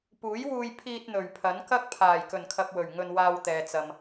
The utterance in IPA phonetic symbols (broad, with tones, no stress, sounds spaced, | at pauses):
p uː˨˥ j w uː˧ j pʰ iː˧ t̚ n̪ ɵ˨˩ ɥ pʰ ɐ˨˥ n k ɐ˥ k̚ pʰ aː˨˩ j k ɵ˨˩ n kʰ ɐ˨ p̚ w ɵ˨˩ ɥ ŋ ɵ˧ n w aː˧ w t̪ ɛː˨ t͡s ɐ˨ m